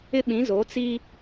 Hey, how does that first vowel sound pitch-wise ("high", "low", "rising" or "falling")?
high